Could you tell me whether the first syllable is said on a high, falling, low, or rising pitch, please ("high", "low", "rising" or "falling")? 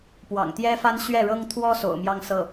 low